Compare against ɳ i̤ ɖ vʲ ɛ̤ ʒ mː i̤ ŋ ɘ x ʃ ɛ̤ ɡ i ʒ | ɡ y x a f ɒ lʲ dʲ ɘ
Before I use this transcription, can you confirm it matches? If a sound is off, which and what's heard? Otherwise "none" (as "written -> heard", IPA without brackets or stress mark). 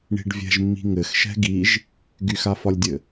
none